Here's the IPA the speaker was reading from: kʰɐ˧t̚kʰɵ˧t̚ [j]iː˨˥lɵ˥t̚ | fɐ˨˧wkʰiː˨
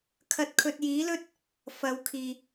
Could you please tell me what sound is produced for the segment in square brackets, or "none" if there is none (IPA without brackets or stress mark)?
j